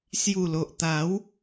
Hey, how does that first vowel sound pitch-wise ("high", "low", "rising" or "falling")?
low